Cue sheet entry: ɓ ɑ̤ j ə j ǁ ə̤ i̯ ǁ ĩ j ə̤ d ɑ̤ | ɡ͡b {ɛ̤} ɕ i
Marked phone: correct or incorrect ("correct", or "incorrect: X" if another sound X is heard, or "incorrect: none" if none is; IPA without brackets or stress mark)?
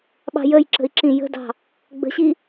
incorrect: ə̤